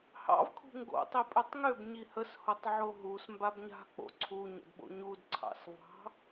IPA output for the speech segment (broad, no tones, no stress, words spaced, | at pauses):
hɑ̰v kʰṳŋɡo̰ tˤipʼøtˤŋøb ɲihəs hotˤʕoɦus mbabɲa̤ k͡po̰ǀʰu ɲə̰dɓo̰ɲud ǀʰɑ̰svɑ̤